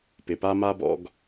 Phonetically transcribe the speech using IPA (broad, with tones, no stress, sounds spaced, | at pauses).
p ɪ˩ p a˦ m a˥ b ɔ̰˦ ɡ